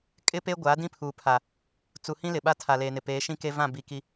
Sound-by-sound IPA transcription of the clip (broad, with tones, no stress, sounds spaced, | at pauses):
kʼ ɪ˦ p e˦ ɡʷ aː˨˦ d ĩ˦ pʰ uː˨ pʰ a˨ | t͡s u˨ h ĩ˦ l ɪ˨ ɓ a˦ tʰ a˨ l eː˨ n ɪ˨ p eː˨˦ ʃ ĩ˦ k e˦ v ã˦˨ b i˨ k i˨